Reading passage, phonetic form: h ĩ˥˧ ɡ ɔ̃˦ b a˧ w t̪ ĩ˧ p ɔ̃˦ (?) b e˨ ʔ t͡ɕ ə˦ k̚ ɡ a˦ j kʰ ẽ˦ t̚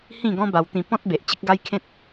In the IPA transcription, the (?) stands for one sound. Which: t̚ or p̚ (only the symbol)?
t̚